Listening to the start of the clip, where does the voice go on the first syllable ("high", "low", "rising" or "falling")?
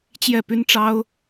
falling